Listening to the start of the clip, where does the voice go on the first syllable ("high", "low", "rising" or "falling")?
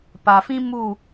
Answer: low